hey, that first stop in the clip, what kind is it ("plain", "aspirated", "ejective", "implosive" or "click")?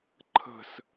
click